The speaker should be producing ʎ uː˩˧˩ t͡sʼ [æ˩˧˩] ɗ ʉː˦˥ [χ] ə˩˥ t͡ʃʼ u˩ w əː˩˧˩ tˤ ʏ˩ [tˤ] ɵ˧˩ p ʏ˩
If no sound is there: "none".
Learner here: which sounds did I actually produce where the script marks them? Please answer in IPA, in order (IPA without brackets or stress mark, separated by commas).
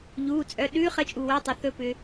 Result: œ˩˧˩, χ, θ